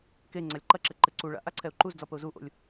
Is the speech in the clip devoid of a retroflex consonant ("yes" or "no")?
no